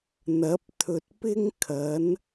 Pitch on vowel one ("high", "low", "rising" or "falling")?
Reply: rising